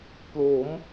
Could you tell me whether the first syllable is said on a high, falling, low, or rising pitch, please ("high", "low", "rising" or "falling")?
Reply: rising